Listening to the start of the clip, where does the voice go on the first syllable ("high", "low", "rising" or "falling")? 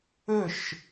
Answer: falling